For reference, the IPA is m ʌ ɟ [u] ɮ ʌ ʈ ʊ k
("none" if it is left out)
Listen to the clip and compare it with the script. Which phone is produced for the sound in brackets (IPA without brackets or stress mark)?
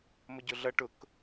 ʊ